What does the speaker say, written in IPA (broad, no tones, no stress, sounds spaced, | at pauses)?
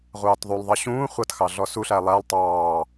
ʁʷ ɑː t ðˤ u lˠ ðˤ ɑ ɕ ũː χʷ ʌ t x ɑ ɮ ɔ s u ɬ æ lˠ æ lˠ tˤ ɑː